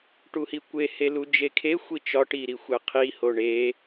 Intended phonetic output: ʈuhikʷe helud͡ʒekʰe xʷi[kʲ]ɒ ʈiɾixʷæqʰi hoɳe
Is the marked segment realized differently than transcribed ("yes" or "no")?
yes